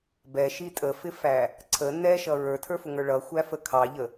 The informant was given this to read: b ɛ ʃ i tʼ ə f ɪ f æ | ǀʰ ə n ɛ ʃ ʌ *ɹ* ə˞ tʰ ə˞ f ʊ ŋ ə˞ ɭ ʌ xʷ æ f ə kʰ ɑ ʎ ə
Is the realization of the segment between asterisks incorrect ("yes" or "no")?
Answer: no